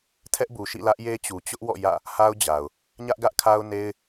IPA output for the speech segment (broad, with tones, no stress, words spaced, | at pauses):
tʰɛ˦ʔbu˨ ʃḭ˦˨lä˦ʔje˦ t͡ɕu˨ t͡ɕʊ˦ʔwɔ̰˦˨ jä̰˦˨ | ha˦ʊ̯d͡ʑa˨ʊ̯ | ɲä˦ʔɡä˦ʔkʰa˦ʊ̯ne˦ɪ̯